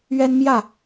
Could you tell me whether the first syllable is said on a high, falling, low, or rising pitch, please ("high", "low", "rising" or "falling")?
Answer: high